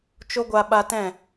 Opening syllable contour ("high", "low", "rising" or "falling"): high